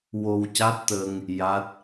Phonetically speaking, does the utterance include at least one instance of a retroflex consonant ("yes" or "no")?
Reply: no